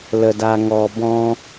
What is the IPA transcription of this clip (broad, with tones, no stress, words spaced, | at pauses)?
lə˧da˧ŋɔ˧ bɔ̃˧